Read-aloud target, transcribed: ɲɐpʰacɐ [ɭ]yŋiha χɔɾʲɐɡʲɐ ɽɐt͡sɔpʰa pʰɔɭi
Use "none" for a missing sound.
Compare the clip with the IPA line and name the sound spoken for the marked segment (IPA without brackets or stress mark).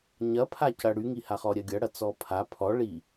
ɽ